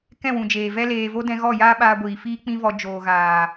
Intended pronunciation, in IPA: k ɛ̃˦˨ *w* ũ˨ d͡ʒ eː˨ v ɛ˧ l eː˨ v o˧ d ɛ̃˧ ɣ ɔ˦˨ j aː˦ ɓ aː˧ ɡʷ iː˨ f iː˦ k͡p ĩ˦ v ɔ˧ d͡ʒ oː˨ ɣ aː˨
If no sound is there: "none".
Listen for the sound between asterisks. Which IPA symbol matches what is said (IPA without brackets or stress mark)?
w